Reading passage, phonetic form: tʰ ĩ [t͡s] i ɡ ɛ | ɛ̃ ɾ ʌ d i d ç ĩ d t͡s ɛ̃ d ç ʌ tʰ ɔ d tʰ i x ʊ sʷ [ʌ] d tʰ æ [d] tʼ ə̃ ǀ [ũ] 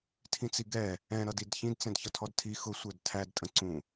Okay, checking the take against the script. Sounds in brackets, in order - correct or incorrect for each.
correct, incorrect: ə˞, correct, correct

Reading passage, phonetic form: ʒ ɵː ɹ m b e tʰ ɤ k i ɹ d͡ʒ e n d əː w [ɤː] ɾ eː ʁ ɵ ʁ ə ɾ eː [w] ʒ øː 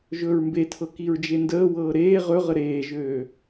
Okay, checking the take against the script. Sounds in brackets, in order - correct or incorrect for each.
correct, incorrect: none

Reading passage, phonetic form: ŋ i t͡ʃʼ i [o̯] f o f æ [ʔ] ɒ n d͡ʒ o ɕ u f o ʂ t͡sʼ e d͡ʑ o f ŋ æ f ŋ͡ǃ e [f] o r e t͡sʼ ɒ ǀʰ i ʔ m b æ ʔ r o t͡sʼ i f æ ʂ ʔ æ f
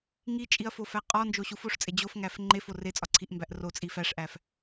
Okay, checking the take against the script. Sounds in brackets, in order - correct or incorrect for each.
incorrect: ɐ̯, incorrect: qʼ, correct

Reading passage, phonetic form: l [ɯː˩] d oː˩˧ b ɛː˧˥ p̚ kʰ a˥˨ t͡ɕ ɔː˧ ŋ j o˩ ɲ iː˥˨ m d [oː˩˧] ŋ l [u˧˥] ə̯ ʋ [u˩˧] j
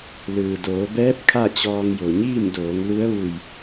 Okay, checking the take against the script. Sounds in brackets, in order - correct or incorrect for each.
correct, correct, correct, incorrect: u˧˩

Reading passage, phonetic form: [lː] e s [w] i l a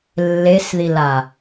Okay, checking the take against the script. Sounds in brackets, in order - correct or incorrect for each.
correct, incorrect: ð

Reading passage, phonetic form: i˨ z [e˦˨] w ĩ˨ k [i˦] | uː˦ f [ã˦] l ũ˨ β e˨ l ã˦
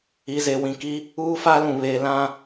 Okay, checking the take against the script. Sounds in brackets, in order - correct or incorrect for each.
incorrect: e˨, correct, incorrect: a˦

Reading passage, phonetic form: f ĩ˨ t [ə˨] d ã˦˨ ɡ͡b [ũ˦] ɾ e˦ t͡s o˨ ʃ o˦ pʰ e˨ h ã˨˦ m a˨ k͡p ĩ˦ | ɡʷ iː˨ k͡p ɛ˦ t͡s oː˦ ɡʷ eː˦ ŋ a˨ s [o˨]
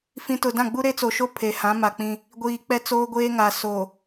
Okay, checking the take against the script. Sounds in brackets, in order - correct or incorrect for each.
incorrect: ʊ˨, incorrect: u˦, correct

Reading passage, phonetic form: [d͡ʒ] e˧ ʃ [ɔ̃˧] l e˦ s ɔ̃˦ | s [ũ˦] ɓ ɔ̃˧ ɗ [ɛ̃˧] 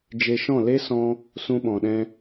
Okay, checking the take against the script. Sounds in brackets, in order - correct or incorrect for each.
correct, incorrect: ɔ̃˦˨, correct, incorrect: ɛ̃˦

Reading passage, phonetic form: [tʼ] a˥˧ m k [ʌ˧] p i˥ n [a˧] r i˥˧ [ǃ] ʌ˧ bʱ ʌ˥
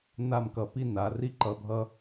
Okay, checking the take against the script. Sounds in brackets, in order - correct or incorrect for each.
incorrect: n, correct, incorrect: a˩˧, correct

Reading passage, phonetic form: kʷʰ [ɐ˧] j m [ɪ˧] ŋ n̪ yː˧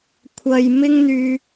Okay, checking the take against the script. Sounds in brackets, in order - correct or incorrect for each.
correct, incorrect: ɪ˥

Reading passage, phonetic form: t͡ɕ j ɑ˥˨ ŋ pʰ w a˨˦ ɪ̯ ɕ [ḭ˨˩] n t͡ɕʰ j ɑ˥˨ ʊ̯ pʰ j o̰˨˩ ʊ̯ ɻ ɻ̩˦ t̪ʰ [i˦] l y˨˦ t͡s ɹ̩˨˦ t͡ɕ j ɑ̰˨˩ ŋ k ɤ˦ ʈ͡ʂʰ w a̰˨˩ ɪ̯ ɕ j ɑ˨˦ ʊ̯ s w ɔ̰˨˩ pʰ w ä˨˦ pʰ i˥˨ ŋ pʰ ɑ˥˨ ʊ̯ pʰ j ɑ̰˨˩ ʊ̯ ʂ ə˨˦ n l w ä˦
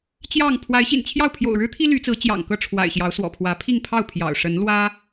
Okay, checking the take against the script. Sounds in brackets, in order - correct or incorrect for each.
correct, correct

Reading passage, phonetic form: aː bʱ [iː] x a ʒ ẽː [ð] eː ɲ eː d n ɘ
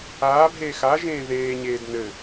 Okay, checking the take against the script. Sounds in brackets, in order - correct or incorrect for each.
incorrect: eː, correct

